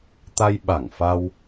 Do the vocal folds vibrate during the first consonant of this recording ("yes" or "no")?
no